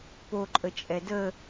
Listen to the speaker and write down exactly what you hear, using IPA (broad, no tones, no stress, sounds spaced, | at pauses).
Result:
p o ǃʼ ə t͡ʃʼ ɛ d ə